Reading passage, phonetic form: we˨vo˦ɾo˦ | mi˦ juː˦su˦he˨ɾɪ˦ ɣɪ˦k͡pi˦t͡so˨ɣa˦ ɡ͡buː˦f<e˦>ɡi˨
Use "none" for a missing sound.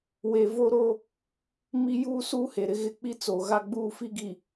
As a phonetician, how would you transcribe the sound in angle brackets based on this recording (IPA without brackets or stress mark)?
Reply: i˦